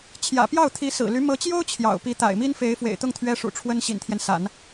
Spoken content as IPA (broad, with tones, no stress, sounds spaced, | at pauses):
t͡ɕʰ j ä̰˨˩ p j ɑ˥˩ ʊ̯ t̪ʰ i˧˥ s ɹ̩˨˩ l y˧˥ m ɤ˧˥ t͡ɕ j o˥ ʊ̯ t͡ɕʰ j ɑ̰˨˩ ʊ̯ p i˧˥ t̪ a̰˨˩ ɪ̯ m i˥ n f e˧˥ ɪ̯ f w ḛ˨˩ ɪ̯ t̪ ʊ˥˩ ŋ t̪ʰ ɥ ɛ˥ ʂ ṵ˨˩ ʈ͡ʂʰ w ə˥ n ɕ ḭ˨˩ n t̪ʰ j ɛ˦ n s a̰˨˩˦ n